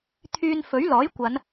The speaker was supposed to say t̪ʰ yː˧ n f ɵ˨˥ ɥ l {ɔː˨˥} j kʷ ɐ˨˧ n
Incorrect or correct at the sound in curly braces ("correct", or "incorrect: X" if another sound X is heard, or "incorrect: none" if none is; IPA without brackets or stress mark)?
correct